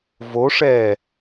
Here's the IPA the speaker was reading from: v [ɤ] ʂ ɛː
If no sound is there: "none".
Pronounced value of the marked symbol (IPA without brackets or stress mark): o